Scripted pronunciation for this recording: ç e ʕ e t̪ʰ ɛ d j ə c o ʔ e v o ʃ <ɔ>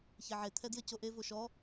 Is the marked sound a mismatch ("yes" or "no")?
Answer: no